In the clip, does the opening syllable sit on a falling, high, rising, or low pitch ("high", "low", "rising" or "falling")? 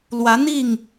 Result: rising